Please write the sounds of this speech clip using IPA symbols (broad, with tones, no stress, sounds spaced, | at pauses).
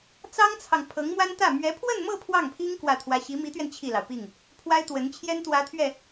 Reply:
t͡s ɑ˥ ŋ t͡sʰ ɑ˨ ŋ pʰ ɤ˧˥ ŋ m w a˥ n t̪ ä˥˩ m ɥ ɛ˧˥ pʰ w ə˥˧ n m ɤ˥˧ pʰ w ɑ˥˩ ŋ pʰ i˥ ŋ k w ä˥˩ t̪ʰ w ä˥ ɕ i˧˥ m i˧˥ t̪ ɥ ɛ˧ n t͡ɕʰ i˥˩ l ɑ˩ ʊ̯ p i˥˩ ŋ | pʰ w a˥ ɪ̯ t̪ w ə˧˥ n t͡ɕʰ j ɛ˥ n t̪ w ä˧˥ t̪ʰ ɥ ɛ˥˩